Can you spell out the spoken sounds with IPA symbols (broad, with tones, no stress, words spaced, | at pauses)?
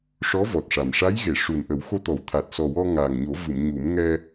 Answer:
ʂɔ˧˥vɔ˨˩t̚ʂa˨˩m ʂa˧˥jɣe˨˩˨ ʂu˨˩nʔə˨˩˦wxo˧t̪ɔ˨˩˦w t̪ʰa˨˩t̚sɔ˨˩ wɔ˧ŋaː˨˩ŋɲo˨˩˦ vɨ˨˩˨mɲu˨˩˦mŋɛ˧